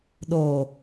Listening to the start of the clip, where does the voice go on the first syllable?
low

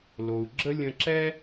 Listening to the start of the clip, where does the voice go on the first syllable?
low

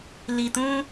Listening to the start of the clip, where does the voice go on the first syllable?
low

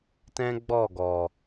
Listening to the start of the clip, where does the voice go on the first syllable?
high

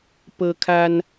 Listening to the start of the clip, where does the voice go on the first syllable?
high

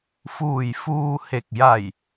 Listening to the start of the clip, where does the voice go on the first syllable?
low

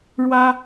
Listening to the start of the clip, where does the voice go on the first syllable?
high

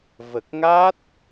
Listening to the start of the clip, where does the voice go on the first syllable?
low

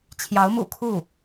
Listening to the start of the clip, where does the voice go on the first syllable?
rising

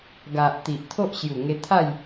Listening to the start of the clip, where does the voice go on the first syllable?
low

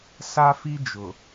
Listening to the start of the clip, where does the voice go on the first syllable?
high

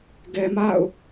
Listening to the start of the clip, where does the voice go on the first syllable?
low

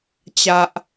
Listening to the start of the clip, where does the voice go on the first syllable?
low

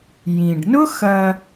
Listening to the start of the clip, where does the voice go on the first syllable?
low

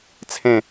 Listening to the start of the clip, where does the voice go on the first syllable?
falling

